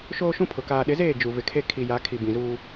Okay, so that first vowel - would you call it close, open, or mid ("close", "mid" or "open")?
mid